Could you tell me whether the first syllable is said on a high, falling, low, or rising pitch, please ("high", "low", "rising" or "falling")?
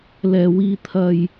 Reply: low